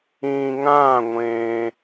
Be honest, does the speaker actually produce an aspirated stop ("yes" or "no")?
no